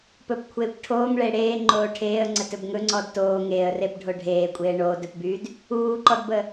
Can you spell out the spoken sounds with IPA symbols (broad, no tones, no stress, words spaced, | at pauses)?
pɵpkʷʰeːkʷ ʈʰoːŋɭe ɽeːŋ͡ǃoː ʈʰeːə̯ŋ͡ǀətɵb ŋɵŋ͡ǀɔd toː ŋeːə̯rebɖʱo ɖʱeːkʷʼeː ɳoːdɵpbyd | uːǃɔdbə